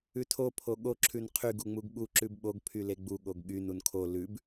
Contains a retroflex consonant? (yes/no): no